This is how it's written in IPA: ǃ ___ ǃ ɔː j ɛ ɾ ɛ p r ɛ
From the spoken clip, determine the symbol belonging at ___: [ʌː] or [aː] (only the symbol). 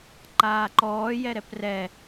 aː